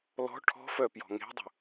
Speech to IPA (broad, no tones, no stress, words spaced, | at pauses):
lɔ̤ ʈʰɔ̤fœ pjɔ̤ŋe̤dˤṳ